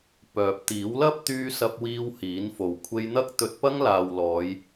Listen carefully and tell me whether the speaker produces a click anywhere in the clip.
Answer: no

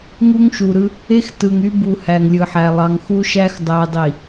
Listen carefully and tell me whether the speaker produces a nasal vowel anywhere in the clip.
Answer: no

